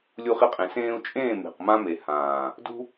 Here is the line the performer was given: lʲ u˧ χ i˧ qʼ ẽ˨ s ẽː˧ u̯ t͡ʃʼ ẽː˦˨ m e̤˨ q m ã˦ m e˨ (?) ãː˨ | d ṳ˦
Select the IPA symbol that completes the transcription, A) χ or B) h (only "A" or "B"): B